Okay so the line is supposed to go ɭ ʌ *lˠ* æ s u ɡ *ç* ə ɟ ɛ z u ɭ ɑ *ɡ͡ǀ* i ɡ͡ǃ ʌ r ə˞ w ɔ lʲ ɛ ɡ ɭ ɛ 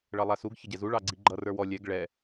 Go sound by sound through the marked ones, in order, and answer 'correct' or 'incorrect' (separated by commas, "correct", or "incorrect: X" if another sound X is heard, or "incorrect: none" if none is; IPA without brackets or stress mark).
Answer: correct, correct, correct